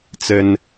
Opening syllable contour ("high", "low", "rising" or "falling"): high